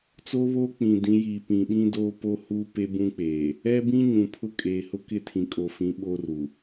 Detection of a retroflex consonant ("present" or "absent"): absent